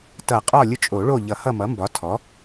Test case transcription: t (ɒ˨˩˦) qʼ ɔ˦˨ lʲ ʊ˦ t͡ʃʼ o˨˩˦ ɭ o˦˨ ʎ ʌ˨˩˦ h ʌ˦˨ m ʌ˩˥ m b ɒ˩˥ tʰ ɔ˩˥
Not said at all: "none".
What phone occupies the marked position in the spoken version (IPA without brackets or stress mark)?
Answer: ʌ˨˩˦